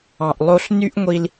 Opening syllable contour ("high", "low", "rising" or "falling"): low